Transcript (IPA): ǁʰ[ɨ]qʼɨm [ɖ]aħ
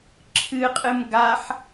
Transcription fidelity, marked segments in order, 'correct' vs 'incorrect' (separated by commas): correct, incorrect